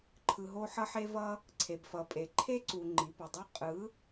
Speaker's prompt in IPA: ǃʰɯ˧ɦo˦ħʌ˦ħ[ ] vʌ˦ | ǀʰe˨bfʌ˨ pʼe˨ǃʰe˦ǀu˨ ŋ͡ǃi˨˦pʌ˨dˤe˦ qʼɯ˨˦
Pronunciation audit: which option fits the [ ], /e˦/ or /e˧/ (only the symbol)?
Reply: e˦